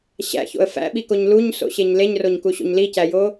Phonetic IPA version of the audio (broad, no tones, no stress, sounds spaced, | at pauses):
ɕ æ̰ ç o̰ ə̯ f æ̰ ɓ i k o ɲ l u ɲ s o̰ ɕ e ɲ l e ɲ r o ɲ k u ɕ o̰ ɲ l i c æ j o